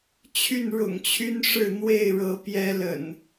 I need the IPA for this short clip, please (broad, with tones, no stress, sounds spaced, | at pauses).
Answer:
t͡ɕʰ y˥˨ n ɻ ʊ̰˨˩ ŋ t͡ɕʰ y˦ n ʂ ɻ̩˥˨ n̪ w e˥˨ ɪ̯ ɻ ɤ˨˦ p j ɛ˦ l ə̰˨˩ n